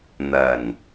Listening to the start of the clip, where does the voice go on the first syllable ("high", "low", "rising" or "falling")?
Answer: low